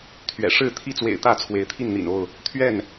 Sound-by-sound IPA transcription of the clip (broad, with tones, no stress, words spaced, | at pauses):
t̪ʰɥɛ̰˨˩ ʂɻ̩˥˨t̪ʰi˥˨t͡swḛ˨˩ɪ̯t̪ä˥˨ t͡sʰwe˨˦ɪ̯t̪ʰi˥˨nn̪ḭ˨˩no˥˨ʊ̯ | t̪ʰɥɛ˥˨n